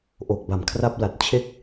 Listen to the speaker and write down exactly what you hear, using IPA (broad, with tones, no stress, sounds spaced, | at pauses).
ʔ o˨˩ k̚ b a˩˦ m kʰ r a˦˥ p̚ l a˨˩ t̚ t͡ɕʰ e˥˩ k̚